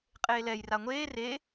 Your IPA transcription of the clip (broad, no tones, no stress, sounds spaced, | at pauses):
qʼ eː l ɛ j r a ŋʷ eː r e